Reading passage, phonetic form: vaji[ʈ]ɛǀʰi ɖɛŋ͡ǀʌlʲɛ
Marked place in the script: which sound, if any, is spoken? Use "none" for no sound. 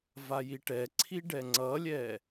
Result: ʈ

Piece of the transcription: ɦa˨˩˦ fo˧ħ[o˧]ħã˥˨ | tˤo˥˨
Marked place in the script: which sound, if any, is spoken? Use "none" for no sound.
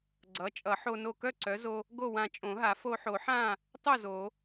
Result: o˨˩˦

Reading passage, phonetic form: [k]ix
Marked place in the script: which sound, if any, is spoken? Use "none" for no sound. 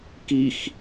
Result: k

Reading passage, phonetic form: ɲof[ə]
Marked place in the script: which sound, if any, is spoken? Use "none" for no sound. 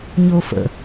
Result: ə̰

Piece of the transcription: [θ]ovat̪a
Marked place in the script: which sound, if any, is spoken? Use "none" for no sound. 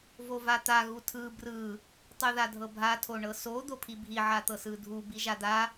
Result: v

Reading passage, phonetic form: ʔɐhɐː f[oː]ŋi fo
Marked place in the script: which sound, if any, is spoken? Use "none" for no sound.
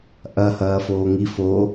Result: oː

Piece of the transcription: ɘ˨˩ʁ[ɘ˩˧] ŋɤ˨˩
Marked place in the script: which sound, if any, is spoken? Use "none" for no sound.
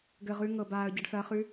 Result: ʉ˩˧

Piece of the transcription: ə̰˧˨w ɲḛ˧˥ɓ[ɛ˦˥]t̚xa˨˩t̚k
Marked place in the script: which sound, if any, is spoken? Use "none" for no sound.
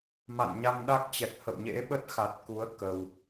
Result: ə˦˥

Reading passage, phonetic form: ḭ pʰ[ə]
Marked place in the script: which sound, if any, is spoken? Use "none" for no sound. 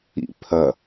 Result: ɐ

